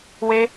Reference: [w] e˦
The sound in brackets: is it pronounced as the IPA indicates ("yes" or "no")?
yes